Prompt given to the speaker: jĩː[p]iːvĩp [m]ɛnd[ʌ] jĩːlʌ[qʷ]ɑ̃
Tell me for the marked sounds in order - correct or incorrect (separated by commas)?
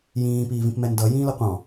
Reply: correct, correct, correct, correct